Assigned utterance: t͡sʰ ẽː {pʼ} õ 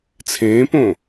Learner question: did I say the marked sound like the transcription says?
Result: no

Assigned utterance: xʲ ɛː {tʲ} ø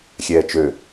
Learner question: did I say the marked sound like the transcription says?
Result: no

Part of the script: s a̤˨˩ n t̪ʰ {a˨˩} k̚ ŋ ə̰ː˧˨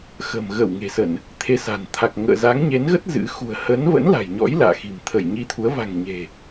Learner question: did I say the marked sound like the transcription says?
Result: yes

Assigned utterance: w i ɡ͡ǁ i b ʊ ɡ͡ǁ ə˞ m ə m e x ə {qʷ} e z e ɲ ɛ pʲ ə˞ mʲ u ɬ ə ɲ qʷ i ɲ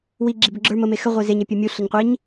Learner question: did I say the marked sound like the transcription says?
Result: no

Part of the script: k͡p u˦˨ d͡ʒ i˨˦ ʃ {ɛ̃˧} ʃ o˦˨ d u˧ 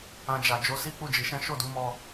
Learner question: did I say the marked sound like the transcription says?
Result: no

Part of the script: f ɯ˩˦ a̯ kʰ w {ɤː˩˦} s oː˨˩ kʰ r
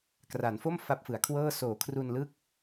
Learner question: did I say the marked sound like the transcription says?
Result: no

